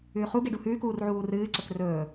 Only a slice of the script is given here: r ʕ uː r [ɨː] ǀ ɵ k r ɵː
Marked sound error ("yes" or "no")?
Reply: no